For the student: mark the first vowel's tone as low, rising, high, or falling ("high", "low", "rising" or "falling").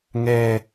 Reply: high